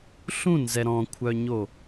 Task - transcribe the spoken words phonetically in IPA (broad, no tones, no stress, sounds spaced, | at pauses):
ɬ ũ n z ɛ ɾ ɔ̃ kʷʰ œ ɲ o